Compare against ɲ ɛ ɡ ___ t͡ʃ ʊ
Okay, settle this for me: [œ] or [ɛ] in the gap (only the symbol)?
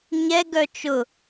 œ